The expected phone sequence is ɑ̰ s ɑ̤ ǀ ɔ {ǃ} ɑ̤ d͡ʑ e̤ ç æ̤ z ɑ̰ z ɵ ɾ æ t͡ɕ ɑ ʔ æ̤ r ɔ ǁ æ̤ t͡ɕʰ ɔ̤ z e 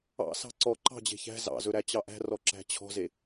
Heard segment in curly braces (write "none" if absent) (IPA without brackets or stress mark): ǃ